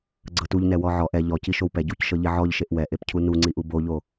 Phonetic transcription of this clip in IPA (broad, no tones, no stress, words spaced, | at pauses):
ɡ͡ǀɤtuʎnɛ wɔʕɔʔ ɛ ʎɔci ʃowpɛ ɟucʃɤʎi ʕɔʎʃeʔ wɛʔepcʰu nuŋ͡ǀiʔu boʎo